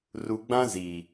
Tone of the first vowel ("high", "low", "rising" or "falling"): low